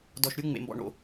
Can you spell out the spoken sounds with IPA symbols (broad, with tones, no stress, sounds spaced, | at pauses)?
d ɔ˨ ʃ ɾʲ u˨˦ ŋ͡m ḛ˨ m b ɔ̰˨ ɳ o̰˨